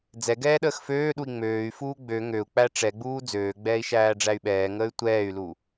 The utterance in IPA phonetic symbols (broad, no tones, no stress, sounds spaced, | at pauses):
d͡z ɛ ɡ ɛː ɗ əː x f øː ɗ u i̯ ŋ͡m øː y̯ f uː ɡ͡b ø ŋ ø u̯ k͡p æ ʈ͡ʂ ɛ ɡ͡b uː d͡z øː ɡ͡b ɛː i̯ ʃ æː ɖ͡ʐ æ y̯ ɓ ɛː ŋ əː y̯ tʷ ɛː y̯ l u